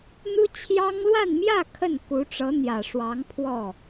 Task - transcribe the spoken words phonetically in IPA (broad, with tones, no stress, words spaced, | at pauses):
n̪u˥ t͡ɕʰjɑ˥ŋlwa˥˧nmjä˥˧ kʰə˥˩n ku˧˥ʈ͡ʂɤ˧˥n̪jä˨˩ʂwɑ˧˥ŋ pʰwɔ˥˩